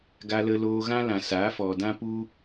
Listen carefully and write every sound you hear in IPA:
ɡ a˧ l ə˧ l oː˧ ɣ ã˦ l ã˨ s aː˨˦ f ɔ˨ d ã˦ p u˦

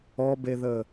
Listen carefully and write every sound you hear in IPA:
ɔ b e ð ə

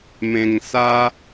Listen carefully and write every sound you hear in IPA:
m ẽ˧ ŋ s a˦

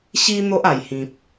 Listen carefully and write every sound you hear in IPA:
ɕ i˧ n̪ o˦ ʔ a˨˩ j h ĩ˨ p̚

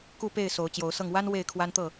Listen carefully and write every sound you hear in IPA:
k u˥˨ p e˥˨ ɪ̯ s o˨˦ ʊ̯ t͡ɕ j o˨˦ ʊ̯ s ɤ˥˨ ŋ w a˦ n w e˥˨ ɪ̯ kʰ w a˦ n t̪ ɤ˥˨

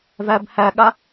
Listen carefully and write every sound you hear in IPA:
v æ b h æ ɠ a

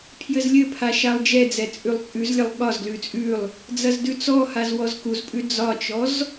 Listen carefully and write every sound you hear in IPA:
pʰ j ɘ z lʲ ɘ pʰ a ʃ a lˠ d͡ʒ ɛ d͡z ɛ t͡sʼ ʉ lˠ t͡sʼ ʉ z lʲ ɐ lˠ ɠ ɒ z ɡ l ʉ t͡sʼ ʉ lˠ | d͡z ɐ z d ʉ t͡s ɔ h a z w ɔ z k u z pʼ ʉ d͡z ɒ t͡ʃ ɔ z

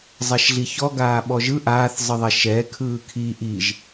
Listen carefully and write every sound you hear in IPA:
zˤ ɛ ʃ ɮ i ç ɔ ɡ aː ɓ ɔ ʒ ɯ ʔ aː θ zˤ ɨ ðˤ ɛ ʃ ɛ kʰ ɯː kʰ i ʔ i ʒ

